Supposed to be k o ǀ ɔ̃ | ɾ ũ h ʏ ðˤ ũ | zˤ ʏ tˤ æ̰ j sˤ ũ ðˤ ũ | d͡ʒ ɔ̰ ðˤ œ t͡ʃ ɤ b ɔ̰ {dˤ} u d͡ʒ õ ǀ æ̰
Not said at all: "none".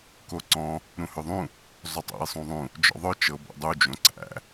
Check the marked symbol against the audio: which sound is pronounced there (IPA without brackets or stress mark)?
dˤ